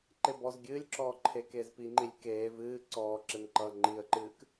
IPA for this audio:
ǃ e b ɔ z ɡʲ ɨː lʲ ǁ ɔː ǃʰ e k eː z p i ŋ͡ǃ i lʲ k eː v ɨː ǀ ɔː ǁ e m ǃ ʌː ŋ͡ǃ i ə̯ ǃ ɨː k

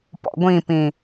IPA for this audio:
p ɔ̰ ɡʷ ĩ p ĩ

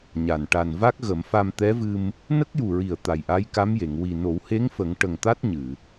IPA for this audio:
ɲ a˨˩ n ʈ a˨˩ n v a˦˥ k̚ ɣ ə˨˩˦ m f a˧ m t̪ ɛ˧˥ v ɨ˧ m | n ə˦˥ k̚ j u˨˩ ɹ i˨˩ ə̯ t̪ a˨˩ j ʔ a˧˥ j k a˧˥ m j e˨˩˨ ŋ w i˨˩ n o˨˩˦ w h e˧˥ ŋ f ə˨˩˦ ŋ ʈ ə˨˩ ŋ t̪ a˦˥ t̚ ɲ ɨ˨˩˨

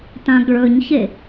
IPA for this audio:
t ã ɡ ɭ ɵ ɲ ç e

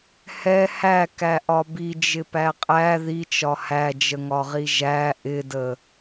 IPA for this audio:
h ɛ h æ k æ ʔ ɒ b i d͡ʒ ɪ p æ qʼ æ ð i t͡ʃ ɒ h æ d͡ʒ ə ŋ ɒ ʁ i ʒ æ ʔ ɪ d ə

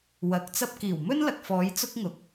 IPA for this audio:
w ɐ˨˥ k̚ t͡s ɐ˥ p̚ k iː˨˩ w m ɵ˥ n l ɐ˨ k̚ f ɔː˨˧ j t͡s ʊ˥ k̚ ŋ ʊ˨ k̚

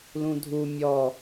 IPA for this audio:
l ũ dʱ u mʲ ɔ

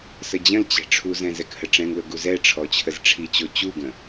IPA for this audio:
s ə d͡ʑ ə̃ l t͡ɕ ɛ̤ ʈ͡ʂʰ u z ɛ̃ z ɛ k h ə ʈ͡ʂ ɛ̃ ŋ l ʊ ɡ u z ɛ ʈ͡ʂʰ ɔ t͡ɕʰ ə z ʈ͡ʂʰ i t͡ɕ o t͡ɕ u ɡ ə̃

